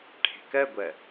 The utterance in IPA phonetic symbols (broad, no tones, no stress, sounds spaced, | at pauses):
ʈʰ e̤ k ɜ ɡʷ ɜ